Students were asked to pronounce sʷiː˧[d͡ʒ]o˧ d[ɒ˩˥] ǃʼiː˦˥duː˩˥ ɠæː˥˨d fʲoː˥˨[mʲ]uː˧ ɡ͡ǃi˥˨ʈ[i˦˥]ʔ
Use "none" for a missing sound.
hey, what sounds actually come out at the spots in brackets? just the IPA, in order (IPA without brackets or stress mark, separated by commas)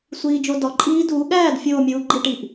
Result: d͡ʒ, ɒ˩˥, mʲ, i˩